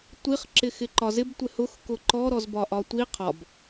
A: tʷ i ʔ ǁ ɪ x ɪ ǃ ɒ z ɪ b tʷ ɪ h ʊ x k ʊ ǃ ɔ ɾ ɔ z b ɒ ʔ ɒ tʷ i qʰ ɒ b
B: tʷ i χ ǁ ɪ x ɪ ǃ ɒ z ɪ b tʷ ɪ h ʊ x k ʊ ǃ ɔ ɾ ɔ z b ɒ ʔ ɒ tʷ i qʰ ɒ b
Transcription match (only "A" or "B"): B